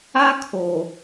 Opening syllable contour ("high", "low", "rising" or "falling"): high